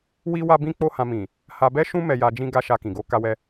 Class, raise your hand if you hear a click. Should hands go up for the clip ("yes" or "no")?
no